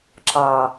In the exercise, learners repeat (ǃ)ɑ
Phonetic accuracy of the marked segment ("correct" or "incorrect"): incorrect